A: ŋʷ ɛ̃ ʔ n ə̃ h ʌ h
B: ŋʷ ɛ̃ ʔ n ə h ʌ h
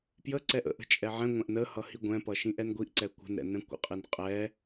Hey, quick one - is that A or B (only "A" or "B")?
B